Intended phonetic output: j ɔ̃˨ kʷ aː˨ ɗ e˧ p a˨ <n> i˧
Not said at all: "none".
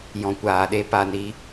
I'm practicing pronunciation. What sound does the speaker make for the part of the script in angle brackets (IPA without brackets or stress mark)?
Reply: n